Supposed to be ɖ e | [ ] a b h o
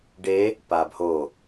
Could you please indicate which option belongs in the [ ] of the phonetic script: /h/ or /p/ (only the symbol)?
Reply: p